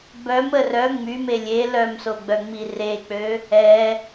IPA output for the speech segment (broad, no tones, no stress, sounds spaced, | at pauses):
b œ m ə r œ ŋ͡m y m e lʲ e l œ m s o ɡ͡b œ ŋ͡m i r e k͡p ø | ɛ